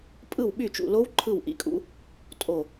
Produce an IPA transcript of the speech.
pʼ ɯ˦˨ w ɓ y˦˨ t͡ʃ ṵ˦˨ l o˦˥ w ǃʰ ɯ˦˨ w ʔ ḭ˦˥ kʼ ṵ˦˥ | tʼ o˦˨

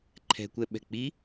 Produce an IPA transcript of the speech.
ǃʰ ɛ̤ kʷ ɛ ɓ ɛ̤ k͡p i

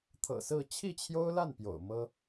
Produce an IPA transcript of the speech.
t̪ʰ ɤ̰˨˩ s ɹ̩˥˧ t͡ɕʰ i˥˩ t͡ɕʰ j o˥ ʊ̯ l a˥˩ n p j o̰˨˩ ʊ̯ m ɤ˥

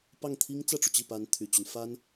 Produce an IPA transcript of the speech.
p ɑ˥˩ ŋ t̪ʰ i˥ ŋ t͡s ä˥˩ ʈ͡ʂ u˩ t͡ɕ i˥˩ p a˧˥ n t̪ʰ y˨˩ t͡ɕ y˦ n f a˥ n

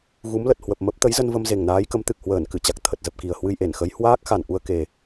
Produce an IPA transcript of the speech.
ɣ u˨˦ m l ə˨˩ t̚ h w ə˨˩ p̚ m ə˦˥ p̚ t̪ ə˨˦ j z ə˧ n v ə˧ m z e˨˩ ŋ n aː˨˦ j k ə˨˦ m t̪ ɨ˨˩ k̚ h w əː˧˩ n k ɨ˧˩ t͡ɕ a˨˩ k̚ t̪ʰ ə˨˩ t̚ z ə˨˩ p̚ k i˨˩ ə̯ h w ɨ˧ j ʔ e˧˩ n x ə˨˦ j h w aː˦˥ k̚ x a˨˩ n ʔ u˧ ə̯ k e˨˩

